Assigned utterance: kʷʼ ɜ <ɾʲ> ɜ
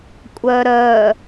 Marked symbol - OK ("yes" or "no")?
no